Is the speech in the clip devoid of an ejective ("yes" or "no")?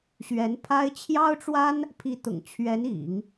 yes